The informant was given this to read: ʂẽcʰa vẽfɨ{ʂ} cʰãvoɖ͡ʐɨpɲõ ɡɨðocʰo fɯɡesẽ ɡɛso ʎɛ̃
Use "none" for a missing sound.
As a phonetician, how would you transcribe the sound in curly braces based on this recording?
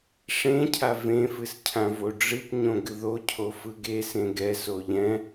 s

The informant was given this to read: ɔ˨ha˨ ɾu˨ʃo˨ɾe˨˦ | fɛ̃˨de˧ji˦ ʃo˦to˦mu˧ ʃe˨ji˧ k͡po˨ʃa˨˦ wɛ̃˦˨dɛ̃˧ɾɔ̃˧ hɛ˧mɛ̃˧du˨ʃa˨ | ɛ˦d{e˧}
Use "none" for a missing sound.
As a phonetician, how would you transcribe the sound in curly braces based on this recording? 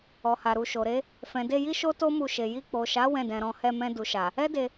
e˧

